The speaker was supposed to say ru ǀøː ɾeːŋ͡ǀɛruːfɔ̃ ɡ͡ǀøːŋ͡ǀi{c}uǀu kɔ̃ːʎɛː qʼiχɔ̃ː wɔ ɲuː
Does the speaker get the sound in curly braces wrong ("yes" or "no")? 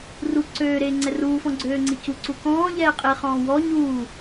no